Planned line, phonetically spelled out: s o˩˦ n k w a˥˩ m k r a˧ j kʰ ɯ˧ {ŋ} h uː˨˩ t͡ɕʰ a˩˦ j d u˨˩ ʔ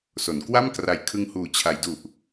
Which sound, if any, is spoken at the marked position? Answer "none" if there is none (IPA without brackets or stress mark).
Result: ŋ